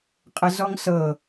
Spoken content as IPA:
qʼəzɔŋsɤ

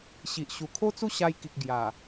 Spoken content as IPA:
ɕi˨ʔɕu˨˩ kʰo˦t͡su˥˧ɕa˧jki˨k̚ ɡja˨˩

